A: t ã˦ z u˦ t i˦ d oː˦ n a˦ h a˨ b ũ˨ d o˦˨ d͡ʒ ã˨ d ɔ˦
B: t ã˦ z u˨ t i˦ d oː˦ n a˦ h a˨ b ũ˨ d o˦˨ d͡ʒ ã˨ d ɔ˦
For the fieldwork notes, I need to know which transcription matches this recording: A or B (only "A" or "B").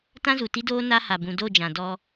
B